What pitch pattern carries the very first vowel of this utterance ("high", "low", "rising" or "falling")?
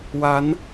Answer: rising